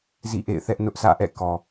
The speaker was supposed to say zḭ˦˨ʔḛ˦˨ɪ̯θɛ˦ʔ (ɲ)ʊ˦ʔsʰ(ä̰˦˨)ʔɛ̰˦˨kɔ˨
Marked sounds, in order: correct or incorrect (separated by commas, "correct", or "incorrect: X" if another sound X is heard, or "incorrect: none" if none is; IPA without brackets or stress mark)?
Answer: incorrect: n, correct